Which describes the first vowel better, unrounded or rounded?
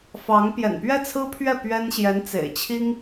unrounded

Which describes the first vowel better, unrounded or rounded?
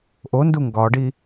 rounded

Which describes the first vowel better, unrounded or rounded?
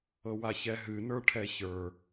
unrounded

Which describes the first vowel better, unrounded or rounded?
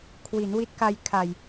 unrounded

